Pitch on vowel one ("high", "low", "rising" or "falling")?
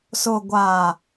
low